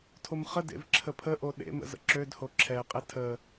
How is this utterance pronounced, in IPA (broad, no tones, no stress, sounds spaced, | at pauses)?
tʰ o m χ ə d ḛ v ǁʰ ə pʰ ə ʔ o ɗ ḛ m ə̰ z ə̰ ǁ ø d h o ǁʰ ɛ qʼ ɛ tʰ ə